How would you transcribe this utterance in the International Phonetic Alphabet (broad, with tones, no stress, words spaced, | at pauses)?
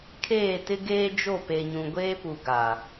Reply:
kʰeː˦˨tɪ˦ɡeː˦d͡ʒo˦˨ pe˨ɲũ˨ɡʷeː˦pu˨ ɡa˨